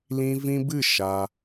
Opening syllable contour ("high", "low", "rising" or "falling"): high